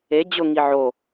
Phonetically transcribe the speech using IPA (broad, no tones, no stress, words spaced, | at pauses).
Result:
e d͡ʑʊŋi ʕo